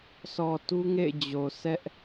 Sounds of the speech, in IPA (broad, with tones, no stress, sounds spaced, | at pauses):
s ɔ˨ t u˦ ŋ ḛ˦˨ ɪ̯ d͡ʑ o˨ sʰ ɛ˦ ʔ